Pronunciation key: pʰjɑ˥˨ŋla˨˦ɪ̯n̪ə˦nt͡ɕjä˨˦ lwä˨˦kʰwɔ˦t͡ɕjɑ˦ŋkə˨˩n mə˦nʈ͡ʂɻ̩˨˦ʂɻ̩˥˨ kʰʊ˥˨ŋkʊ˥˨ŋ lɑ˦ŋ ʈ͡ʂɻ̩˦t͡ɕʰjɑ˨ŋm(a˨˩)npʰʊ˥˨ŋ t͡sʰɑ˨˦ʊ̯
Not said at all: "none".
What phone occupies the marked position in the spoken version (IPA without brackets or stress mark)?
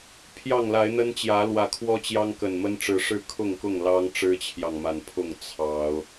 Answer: a˨˩